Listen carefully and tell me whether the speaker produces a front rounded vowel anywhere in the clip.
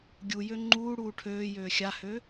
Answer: yes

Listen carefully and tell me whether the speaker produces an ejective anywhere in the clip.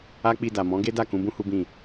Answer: no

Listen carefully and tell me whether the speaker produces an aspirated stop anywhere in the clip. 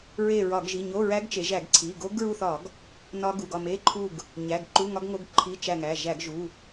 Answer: yes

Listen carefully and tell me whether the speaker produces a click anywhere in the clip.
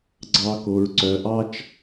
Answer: yes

